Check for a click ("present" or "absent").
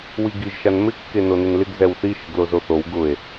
absent